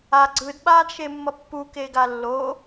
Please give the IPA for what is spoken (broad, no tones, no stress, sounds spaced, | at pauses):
a ɡ͡ǀ ɯ d ɓ aː d ʃ e mː ʌ pː u k e ɡ a lː o